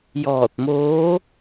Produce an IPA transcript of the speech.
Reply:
j ɔː˧˩ t̚ m oː˧˥

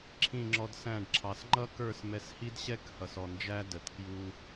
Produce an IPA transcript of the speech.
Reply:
ǁʰ ĩ˦˨ ŋ͡ǁ ɔ˧ d s æ̃˦˨ ɖ ǁʰ ɑ˨ s ŋ͡ǃ ʌ˦ k ə˞˦˨ s m ɛ˧ s h i˦ d ɕ ɛ˦ k h ʌ˨ s ɔ˨ n d͡ʒ æ˦ d ə˨ t k j u˦

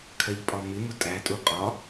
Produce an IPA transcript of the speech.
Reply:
kʰ ɜ ʎ pʼ ɒ m ɪ m ʊ tʼ æ tʼ u qʼ ɒ

